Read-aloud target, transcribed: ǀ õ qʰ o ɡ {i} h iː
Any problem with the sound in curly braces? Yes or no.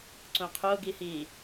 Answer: no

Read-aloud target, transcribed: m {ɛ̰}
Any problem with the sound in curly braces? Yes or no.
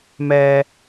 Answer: yes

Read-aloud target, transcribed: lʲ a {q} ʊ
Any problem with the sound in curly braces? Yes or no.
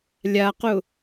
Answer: no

